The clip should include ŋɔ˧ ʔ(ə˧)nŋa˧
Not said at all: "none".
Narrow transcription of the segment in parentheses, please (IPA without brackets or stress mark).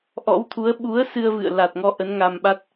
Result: ə˨˦